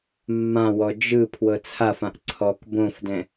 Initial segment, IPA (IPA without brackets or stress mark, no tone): mː